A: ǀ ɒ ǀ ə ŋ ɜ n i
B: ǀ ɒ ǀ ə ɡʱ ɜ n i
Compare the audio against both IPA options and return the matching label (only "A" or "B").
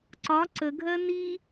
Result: B